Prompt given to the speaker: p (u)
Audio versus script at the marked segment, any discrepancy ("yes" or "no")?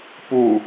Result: no